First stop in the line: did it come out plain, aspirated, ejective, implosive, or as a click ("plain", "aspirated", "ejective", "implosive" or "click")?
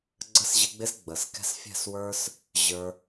click